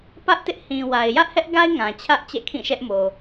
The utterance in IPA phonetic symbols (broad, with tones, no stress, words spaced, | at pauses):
pä˦ʔtɪ˦ʔ hĩ˨wa˨ɪ̯ jä˦ʔhɛ˦ʔɡa˦ɪ̯ ŋã˨t͡ɕʰä˦ʔ t͡ɕɛ̰˦˨kʰĩ˦˨ʃɛ˦ʔmo˨